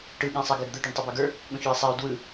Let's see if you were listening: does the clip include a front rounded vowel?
no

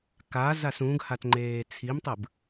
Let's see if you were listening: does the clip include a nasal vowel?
yes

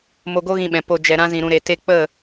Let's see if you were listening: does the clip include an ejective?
no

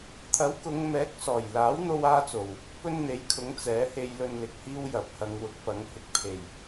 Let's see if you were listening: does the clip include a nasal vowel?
no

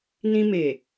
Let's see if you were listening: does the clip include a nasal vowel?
yes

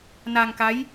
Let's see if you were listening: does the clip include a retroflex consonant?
no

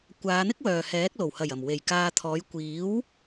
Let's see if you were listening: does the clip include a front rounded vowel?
yes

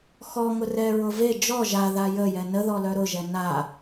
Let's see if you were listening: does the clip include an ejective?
no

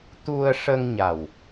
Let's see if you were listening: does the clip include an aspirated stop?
no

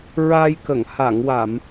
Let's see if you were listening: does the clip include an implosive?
no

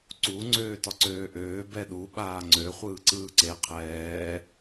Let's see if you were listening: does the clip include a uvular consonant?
yes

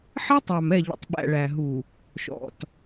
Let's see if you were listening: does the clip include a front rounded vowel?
no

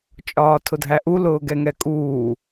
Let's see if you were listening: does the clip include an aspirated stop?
yes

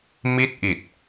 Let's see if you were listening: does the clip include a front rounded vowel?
no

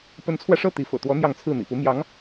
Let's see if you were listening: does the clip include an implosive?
no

